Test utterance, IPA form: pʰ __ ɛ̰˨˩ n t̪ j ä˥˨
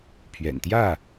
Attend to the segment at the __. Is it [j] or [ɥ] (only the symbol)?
ɥ